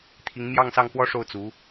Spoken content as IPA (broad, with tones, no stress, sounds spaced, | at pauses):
t̪ʰ i˧˥ ŋ m j ɑ˥˧ ŋ s ɑ˥˩ ŋ f w ɔ˥ ʂ o˥˩ ʊ̯ t͡s u˧˥